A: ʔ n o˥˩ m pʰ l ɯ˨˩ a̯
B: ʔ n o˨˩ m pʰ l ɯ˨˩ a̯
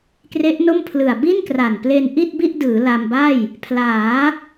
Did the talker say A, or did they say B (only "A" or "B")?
A